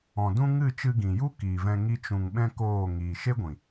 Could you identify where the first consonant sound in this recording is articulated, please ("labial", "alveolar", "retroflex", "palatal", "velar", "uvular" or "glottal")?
alveolar